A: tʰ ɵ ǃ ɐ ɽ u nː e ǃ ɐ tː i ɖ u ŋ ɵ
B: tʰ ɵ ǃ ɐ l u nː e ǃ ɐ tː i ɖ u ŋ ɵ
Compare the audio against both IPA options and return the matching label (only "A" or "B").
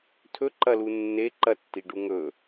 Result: B